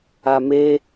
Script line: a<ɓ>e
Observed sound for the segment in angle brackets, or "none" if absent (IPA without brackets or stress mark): m